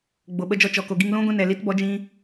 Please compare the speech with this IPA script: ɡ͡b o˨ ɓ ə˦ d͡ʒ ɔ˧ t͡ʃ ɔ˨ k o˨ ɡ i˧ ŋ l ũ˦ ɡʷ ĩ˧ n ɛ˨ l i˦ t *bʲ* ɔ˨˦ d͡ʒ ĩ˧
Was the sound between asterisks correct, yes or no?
no